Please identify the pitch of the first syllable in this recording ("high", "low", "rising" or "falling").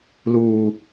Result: low